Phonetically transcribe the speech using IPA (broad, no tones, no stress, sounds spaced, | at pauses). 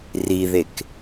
r i ð e k